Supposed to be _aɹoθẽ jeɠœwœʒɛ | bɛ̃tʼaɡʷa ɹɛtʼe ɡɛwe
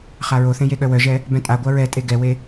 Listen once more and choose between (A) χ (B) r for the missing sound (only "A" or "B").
A